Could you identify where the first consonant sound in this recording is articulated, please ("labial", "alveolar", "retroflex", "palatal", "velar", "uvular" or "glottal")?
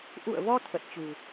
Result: glottal